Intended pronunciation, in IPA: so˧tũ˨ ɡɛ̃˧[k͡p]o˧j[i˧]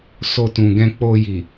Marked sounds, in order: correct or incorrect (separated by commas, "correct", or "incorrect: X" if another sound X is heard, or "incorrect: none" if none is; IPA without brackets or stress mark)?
correct, incorrect: i˨